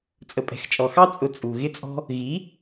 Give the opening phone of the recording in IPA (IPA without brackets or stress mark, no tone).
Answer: t͡sʼ